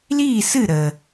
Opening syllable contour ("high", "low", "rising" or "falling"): falling